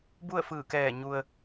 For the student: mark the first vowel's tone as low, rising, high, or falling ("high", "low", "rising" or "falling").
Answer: falling